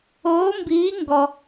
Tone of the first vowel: rising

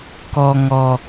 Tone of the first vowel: low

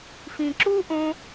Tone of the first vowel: low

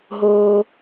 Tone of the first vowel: low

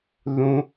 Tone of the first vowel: high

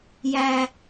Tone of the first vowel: high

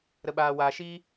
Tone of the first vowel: low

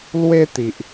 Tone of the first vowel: high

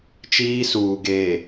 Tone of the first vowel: high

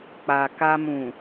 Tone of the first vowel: low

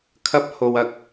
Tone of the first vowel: high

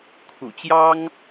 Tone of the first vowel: low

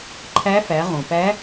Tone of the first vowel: rising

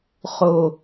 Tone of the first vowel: low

